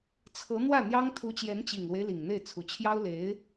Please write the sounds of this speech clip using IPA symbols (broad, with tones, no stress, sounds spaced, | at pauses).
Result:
t͡sʰ ɤ˧˥ n̪ w ä˥˩ n̪ j ɑ˥ ŋ t̪ʰ u˧˥ t͡ɕ j ɛ˧˥ n t͡ɕ i˨˩ ŋ l w e˦ ɪ̯ l i˨˩ ŋ n̪ e˥˩ ɪ̯ t͡sʰ u˨˩ t͡ɕʰ j ɑ˥ ʊ̯ l e˧˥ ɪ̯